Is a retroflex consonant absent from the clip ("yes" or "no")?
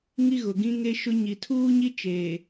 yes